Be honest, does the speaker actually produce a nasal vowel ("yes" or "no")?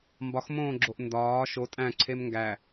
yes